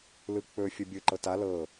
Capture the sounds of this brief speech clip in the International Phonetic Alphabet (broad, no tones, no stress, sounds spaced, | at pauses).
l ɯ k͡p ɵ fʲ ə bʲ ɯ ǃ ɤ t a l ɤ